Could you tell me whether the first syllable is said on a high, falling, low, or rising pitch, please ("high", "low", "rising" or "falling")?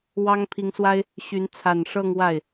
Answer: high